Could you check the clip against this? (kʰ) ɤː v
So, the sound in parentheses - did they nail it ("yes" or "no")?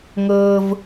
no